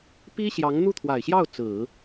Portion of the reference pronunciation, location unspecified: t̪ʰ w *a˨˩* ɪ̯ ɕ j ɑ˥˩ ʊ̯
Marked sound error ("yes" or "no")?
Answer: no